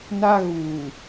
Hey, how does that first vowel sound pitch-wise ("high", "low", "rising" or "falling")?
high